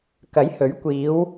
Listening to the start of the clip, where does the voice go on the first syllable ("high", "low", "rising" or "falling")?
rising